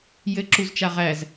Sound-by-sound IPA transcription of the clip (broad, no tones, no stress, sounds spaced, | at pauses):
j ɘ ǁ u z t͡ʃ a ʁ æ z